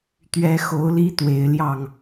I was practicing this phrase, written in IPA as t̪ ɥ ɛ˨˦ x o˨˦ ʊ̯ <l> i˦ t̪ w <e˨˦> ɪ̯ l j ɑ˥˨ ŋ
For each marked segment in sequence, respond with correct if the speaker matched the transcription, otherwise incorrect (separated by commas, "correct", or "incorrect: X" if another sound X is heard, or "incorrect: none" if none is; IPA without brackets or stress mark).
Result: correct, correct